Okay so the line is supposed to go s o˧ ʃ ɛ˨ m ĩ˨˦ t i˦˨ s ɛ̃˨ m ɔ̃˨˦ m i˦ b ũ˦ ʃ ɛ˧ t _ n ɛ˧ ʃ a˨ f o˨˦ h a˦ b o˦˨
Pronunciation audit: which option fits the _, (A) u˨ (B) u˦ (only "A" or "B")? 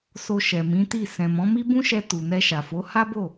A